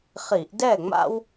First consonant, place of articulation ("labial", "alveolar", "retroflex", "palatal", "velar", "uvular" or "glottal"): uvular